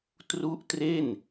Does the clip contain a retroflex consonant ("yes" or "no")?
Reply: no